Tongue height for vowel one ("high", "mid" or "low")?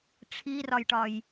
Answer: high